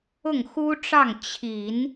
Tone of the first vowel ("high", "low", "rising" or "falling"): falling